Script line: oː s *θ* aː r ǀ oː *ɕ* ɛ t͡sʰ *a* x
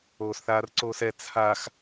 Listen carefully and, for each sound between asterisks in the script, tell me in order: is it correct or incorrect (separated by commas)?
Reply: correct, incorrect, correct